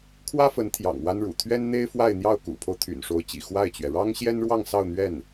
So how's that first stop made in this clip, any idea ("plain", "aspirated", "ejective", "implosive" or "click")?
aspirated